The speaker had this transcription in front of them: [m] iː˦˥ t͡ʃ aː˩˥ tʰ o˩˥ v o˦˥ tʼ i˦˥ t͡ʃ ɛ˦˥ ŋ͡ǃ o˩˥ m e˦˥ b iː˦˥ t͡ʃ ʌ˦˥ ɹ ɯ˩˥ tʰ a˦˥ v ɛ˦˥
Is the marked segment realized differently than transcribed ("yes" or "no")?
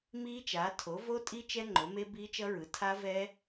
no